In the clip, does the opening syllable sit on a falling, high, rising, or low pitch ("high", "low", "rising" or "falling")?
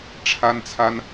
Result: high